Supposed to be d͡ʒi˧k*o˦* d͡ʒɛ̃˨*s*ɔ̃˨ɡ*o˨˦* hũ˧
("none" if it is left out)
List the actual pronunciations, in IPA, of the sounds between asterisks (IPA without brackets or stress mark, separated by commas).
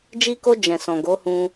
o˧, s, o˨˦